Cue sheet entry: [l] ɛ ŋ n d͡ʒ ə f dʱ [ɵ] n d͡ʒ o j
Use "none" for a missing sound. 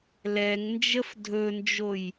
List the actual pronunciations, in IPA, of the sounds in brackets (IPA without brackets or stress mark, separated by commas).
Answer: l, ɵ